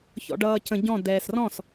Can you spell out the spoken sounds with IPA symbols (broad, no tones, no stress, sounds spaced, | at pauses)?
ç ɔ̰ ɖ ʌː c ə̃ ɟ ɔ̃ d ɛː s r ɔ̃ s